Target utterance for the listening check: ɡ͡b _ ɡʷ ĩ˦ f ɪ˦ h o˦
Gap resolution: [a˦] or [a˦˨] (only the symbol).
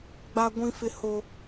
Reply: a˦